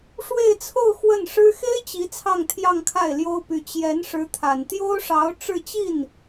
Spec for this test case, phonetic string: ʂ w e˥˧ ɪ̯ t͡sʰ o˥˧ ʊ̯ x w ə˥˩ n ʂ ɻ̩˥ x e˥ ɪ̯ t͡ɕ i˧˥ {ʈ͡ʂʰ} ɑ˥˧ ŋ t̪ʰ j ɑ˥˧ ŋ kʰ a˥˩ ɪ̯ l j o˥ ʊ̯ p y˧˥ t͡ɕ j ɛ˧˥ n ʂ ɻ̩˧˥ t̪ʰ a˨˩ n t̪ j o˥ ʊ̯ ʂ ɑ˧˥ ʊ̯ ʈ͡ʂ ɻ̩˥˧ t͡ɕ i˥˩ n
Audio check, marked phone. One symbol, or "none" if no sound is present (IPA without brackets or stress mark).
t͡sʰ